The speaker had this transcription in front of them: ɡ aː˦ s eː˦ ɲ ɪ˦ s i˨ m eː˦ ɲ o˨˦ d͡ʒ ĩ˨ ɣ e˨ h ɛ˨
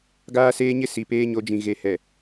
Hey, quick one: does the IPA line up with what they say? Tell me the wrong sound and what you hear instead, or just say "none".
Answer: m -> p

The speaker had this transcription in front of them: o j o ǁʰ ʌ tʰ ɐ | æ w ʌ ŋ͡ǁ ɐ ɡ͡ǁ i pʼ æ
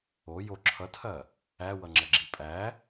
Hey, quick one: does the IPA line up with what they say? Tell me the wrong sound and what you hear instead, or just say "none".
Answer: none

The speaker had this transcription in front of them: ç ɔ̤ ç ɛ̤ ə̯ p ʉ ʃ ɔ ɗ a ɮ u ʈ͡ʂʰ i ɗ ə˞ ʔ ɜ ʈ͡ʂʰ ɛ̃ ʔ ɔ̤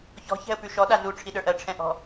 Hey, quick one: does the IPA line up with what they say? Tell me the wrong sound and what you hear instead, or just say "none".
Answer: none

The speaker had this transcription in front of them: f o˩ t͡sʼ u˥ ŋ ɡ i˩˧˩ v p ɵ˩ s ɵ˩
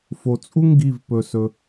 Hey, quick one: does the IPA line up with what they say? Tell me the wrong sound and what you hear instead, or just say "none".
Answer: none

